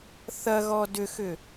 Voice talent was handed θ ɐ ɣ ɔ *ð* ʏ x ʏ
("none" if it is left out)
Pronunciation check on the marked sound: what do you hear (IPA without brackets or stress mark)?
d